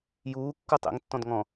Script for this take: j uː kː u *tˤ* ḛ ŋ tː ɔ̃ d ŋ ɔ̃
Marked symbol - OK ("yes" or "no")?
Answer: yes